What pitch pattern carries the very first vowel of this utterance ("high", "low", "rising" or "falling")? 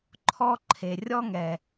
high